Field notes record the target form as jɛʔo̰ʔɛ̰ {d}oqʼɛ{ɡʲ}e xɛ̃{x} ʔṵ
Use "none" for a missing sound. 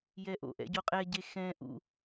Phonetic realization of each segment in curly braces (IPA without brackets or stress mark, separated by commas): ɟ, ɟ, none